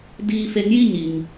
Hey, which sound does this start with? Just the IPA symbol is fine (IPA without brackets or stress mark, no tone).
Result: d